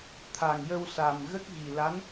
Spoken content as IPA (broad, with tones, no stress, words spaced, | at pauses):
t̪ʰa˨˩ŋjə˧wsa˨˩m ɣə˦˥k̚ɣi˨˩la˧˥n